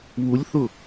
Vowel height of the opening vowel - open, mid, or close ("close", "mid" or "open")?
close